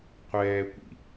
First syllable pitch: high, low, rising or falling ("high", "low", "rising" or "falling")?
low